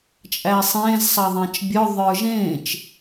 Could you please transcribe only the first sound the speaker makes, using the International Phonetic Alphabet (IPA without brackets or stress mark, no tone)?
t͡ʃʼ